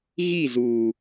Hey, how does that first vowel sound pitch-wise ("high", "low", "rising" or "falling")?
falling